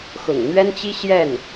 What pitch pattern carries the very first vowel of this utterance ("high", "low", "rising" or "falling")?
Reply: low